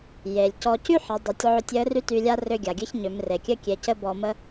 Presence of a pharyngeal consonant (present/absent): present